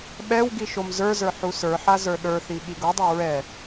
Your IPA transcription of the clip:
ɓ ɛ w ɡ i ʃ o m z ə˞ z ə˞ ħ u s ə˞ ħ a z ə˞ ɗ ə˞ θ i ɠ i ɡ o dˤ a ɹ ɛ

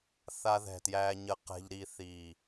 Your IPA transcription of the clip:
θ a˧ ð ɛ̤˨˩ t j æː˧ ɲ ə˧ q ɛ̤˧ ʎ ɾ i˧ θ i˨˩

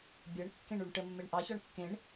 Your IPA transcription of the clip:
bʲ ɤ ɳ kː ẽ ɳ u ɳ ʈ ə mː e ɳ ʔ ɑ ç ɔ ɳ kː ẽ ɳ

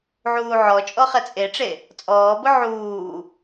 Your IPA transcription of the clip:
ʕ uː ʕ ɔ t͡ʃʼ ɔ χ ɛ t͡sʼ e ʈ͡ʂ e | t͡sʼ ɔː b ʊ ʕ uː

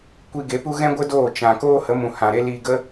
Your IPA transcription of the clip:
kʷ i˧ ɡ e˨˦ p u˦ ɣ ɛ̃˦ ɡʷ ə˦ d oː˦˨ t͡ʃ ã˨ k oː˦ h ə˨˦ m ũ˨ h ã˨ ɾ e˦ l i˧ ɡ ə˦

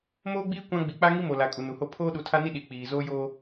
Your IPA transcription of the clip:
m oː˦ ɡ͡b iː˦ kʷ ã˦ ɡ͡b i˨ k͡p a˦ ŋ i˦ m o˨ l a˨ kʼ u˨ n u˨ h o˦ pʰ oː˦ ɗ u˨ tʰ a˦ n i˦ ɗ i˨ k͡p iː˨ z oː˦ j oː˦

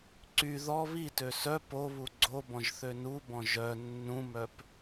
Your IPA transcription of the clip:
ǀ y ð ɔ β i t ø s œ p o β u ɡ͡ǀ o b ɔ̃ ʒ θ ø n u b ɔ̃ ʒ œ nː ũ m œ p

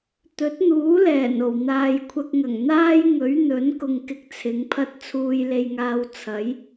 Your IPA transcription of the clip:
t̪ ɵ˨˥ t̚ n̪ uː˨˥ l ɛː˨˩ n o˨˩ w n̪ aː˨ j kʷʰ ɐ˧ k̚ ŋ ɐ˨˩ ŋ n̪ aː˥ j ŋ ɵ˨˥ ɥ n̪ ɵ˨˥ n k ʊ˧ ŋ k ɪ˧ k̚ t͡sʰ ɪ˨˧ ŋ pʰ ɐ˥ t̚ t͡sʰ uː˧ j l e˧ j ŋ aː˧ w t͡sʰ ɐ˨˥ j

